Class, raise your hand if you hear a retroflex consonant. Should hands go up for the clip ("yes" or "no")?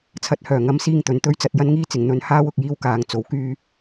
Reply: no